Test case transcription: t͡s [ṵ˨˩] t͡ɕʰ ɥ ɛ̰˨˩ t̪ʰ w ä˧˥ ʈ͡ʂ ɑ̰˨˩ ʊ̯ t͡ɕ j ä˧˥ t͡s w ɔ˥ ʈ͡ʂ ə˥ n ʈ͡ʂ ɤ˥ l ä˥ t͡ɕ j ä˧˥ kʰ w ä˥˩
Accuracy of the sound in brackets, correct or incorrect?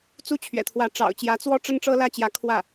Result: incorrect